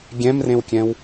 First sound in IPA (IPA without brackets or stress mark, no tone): ɡʲ